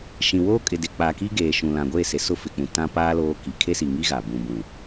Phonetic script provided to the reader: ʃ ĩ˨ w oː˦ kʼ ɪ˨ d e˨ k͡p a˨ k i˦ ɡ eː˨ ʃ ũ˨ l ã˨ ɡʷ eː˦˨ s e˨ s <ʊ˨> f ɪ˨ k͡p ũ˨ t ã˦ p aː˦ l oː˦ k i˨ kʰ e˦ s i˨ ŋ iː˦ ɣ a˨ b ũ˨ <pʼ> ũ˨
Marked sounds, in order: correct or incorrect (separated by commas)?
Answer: incorrect, incorrect